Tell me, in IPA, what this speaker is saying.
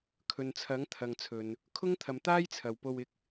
kʰ ɵ˨ n t͡sʰ ɐ˨˥ ŋ t̪ʰ ɐ˨ ŋ t͡sʰ ɵ˨ n | kʰ ʊ˥ ŋ t̪ʰ ɐ˨ m t̪ aː˥ j t͡sʰ ɐ˨ w p o˧ w ɪ˧ k̚

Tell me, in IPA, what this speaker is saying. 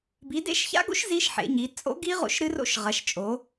b i˨˦ d ḛ˦˥ ʃ ç a̰˦˥ ɡ o̰˦˥ ʃ z i˦˥ ʃ ħ ḛ˨˦ ɲ i˨˦ t͡sʼ o̰˦˥ ɡ i˦˥ ʁ o̰˦˥ ʃ ɾ ɨ˦˥ r o̰˦˥ ʃ ʁ ɐ˨˦ ʃ t͡ʃʼ o˨˦

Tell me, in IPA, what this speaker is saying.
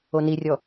o n i rʲ ɔ

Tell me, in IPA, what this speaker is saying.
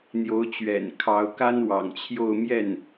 n̪ j o˧˥ ʊ̯ t͡ɕ ɥ ɛ̰˨˩ n kʰ ɑ˧˥ ʊ̯ k a˥ n w ɑ̰˨˩ ŋ t͡ɕʰ j o˥˧ ʊ̯ m j ɛ˥˩ n

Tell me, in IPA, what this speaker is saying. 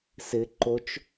s ɪ ǃ o t͡ʃ

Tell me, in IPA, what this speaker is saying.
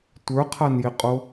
tʷ ə˞ qʰ a n j ɪ qʼ o

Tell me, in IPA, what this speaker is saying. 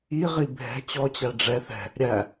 i ʁ i bʱ ɛ̤ t͡ɕ ɔ t͡ɕ æ ɖ͡ʐ ɛ θ ɛ̤ | ɾʲ æ

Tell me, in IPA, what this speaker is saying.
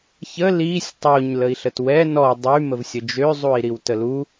ç ə l i sʲ tˤ o ɲ l ə i̯ ɬ ə t w ɛ n ɔ dˤ y m ə v sʲ ə d͡ʒ ø zˤ u i̯ ɾ i w t ə l u

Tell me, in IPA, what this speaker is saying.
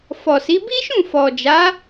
f ɔ˨ s i˨˦ b i˦ ʃ ũ˦˨ f ɔ˨ d͡ʒ a˨˦

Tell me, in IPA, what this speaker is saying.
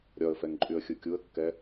ɾʲ ɒ ə̯ f ɛ ŋ ǃʼ y ə̯ xʲ ɯ kʲ u ə̯ kː ɛ

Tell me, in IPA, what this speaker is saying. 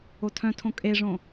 o tʰ œ̃ tʰ õ kʼ e ʐ õ

